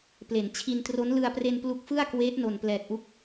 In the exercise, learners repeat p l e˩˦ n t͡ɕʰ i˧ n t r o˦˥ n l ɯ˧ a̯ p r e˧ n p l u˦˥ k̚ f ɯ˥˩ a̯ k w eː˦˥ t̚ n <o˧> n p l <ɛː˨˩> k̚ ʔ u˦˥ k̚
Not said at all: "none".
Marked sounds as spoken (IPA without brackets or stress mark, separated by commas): o˨˩, ɛː˨˩